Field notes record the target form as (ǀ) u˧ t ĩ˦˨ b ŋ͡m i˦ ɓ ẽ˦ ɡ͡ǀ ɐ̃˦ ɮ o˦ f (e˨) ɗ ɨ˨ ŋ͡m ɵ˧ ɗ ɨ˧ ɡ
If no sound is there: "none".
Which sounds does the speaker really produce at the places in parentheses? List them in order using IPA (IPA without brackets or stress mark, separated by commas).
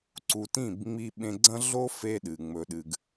ǀ, e˦